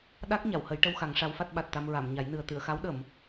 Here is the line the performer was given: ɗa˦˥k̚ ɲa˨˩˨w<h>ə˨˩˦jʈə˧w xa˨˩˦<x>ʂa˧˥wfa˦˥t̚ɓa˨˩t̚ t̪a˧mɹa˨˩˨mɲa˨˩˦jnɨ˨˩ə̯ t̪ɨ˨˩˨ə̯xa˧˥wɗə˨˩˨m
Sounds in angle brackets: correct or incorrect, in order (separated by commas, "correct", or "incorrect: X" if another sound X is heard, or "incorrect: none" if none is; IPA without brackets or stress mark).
correct, incorrect: ŋ